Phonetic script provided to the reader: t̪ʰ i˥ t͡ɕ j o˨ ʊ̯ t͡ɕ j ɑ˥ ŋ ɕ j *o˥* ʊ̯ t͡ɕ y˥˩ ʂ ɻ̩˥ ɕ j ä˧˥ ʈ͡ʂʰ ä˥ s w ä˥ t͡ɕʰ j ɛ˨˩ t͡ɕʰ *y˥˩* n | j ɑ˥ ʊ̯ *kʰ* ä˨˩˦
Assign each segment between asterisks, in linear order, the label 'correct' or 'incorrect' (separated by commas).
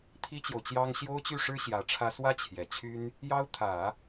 correct, incorrect, incorrect